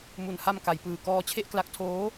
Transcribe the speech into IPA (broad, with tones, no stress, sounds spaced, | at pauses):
m u˨˩ n h a˧ m k a˩˦ j p ɯː˨˩ k ɔː˧ t͡ɕʰ e˥˩ ʔ k l a˦˥ k̚ tʰ oː˦˥